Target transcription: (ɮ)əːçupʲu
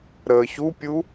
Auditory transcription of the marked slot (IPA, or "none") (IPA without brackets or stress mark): ɾ